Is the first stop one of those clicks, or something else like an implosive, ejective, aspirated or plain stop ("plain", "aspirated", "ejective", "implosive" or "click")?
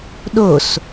implosive